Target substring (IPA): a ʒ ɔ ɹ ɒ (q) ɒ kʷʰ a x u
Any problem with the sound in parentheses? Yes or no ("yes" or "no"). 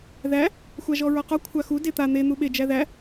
no